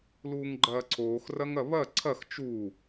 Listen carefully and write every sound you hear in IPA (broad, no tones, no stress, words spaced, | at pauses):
luːŋɡ͡ǃɐːǀʰoːxrɐŋ ɐβɐ ǀʰɐx t͡ʃu